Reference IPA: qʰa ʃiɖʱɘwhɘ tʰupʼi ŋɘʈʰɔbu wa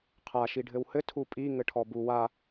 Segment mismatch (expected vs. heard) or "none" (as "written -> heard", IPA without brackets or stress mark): none